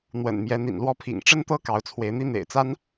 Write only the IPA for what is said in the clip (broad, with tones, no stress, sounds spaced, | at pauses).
n̪ w ə̰˨˩ n m j ɛ˨˦ n̪ ḭ˨˩ n l w ɔ˦ pʰ ḭ˨˩ ŋ ʈ͡ʂ ə˦ n t̪ ɤ˦ k ɑ˨˦ ʊ̯ t͡sʰ w e˨˦ ɪ̯ n̪ i˦ n̪ ḛ˨˩ ɪ̯ t͡s a˦ n